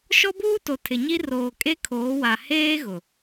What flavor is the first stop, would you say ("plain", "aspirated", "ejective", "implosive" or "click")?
plain